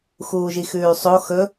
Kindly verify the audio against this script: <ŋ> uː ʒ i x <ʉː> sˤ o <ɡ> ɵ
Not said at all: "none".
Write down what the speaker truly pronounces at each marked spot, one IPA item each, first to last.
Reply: x, ʉː, x

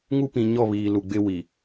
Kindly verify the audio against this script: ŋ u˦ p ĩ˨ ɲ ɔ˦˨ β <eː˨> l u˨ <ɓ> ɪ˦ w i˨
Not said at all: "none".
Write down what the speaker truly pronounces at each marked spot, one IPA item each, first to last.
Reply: iː˨, ɡ͡b

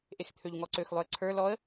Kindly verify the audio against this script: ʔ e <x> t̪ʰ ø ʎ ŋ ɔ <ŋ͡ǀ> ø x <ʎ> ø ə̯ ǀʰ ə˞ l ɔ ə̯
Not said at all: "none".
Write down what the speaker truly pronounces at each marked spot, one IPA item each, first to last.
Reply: x, ǀ, lˠ

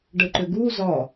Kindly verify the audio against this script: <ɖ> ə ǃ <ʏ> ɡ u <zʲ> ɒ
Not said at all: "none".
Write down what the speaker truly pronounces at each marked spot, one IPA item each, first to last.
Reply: ɖ, ʏ, z

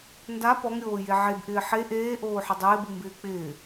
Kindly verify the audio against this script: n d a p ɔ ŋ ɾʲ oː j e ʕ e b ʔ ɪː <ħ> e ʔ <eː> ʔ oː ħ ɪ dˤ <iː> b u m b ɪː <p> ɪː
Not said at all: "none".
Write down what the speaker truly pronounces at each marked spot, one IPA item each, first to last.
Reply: ħ, eː, ɪː, k͡p

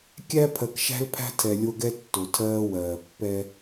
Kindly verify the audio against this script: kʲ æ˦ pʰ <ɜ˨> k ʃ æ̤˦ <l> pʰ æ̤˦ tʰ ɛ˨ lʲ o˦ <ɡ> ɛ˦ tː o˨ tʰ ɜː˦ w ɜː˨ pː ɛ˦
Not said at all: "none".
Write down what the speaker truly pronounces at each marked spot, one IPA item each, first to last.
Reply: ɜ˨, l, ɡ

